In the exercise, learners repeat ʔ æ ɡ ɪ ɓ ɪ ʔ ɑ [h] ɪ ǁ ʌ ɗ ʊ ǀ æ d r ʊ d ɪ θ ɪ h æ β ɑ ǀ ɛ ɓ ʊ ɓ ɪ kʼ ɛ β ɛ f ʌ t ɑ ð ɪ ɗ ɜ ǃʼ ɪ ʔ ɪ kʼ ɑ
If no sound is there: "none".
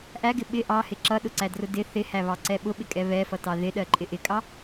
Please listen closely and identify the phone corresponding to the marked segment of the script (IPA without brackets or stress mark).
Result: h